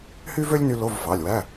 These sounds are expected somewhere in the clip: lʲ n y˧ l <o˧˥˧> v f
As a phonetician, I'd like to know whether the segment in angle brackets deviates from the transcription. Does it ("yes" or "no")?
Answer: no